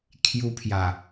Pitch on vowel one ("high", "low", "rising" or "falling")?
high